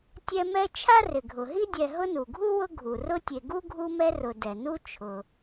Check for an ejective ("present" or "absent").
absent